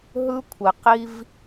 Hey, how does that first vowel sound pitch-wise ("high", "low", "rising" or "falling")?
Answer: high